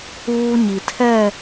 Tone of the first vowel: high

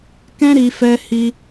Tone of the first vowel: high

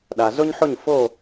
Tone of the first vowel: low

